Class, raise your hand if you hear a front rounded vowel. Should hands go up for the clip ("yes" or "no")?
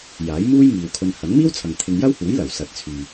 yes